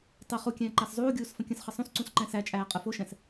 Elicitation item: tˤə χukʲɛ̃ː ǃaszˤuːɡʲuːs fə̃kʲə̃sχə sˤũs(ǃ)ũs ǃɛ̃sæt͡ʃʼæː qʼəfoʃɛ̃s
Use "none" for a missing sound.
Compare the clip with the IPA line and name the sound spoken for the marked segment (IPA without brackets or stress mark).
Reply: ǀ